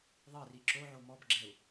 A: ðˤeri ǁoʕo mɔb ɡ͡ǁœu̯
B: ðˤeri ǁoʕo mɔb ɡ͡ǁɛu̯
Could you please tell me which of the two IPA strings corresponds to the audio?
B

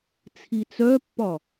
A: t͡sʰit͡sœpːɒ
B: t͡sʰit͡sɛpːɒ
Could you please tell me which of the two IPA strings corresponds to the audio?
A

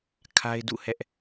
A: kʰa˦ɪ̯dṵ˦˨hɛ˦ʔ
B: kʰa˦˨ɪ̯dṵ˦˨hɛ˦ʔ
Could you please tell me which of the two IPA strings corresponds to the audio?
A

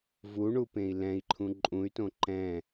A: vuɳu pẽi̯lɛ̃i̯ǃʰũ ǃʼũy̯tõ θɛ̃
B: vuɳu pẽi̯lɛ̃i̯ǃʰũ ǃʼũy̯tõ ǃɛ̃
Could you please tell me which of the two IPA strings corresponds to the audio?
B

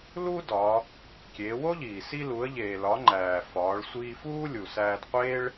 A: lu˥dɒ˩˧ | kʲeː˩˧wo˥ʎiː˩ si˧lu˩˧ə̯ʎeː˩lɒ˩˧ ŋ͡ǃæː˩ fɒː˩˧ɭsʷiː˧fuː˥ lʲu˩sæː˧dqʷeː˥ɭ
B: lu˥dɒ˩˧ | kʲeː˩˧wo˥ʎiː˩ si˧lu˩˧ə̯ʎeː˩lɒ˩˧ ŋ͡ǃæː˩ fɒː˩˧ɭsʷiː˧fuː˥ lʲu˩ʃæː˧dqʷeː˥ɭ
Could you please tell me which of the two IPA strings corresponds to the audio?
A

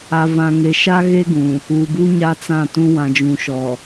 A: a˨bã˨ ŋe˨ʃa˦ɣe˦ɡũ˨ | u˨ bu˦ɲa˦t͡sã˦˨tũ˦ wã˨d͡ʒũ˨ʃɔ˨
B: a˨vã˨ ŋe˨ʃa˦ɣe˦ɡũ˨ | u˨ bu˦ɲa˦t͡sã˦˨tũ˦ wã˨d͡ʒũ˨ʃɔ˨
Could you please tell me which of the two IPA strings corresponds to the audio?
B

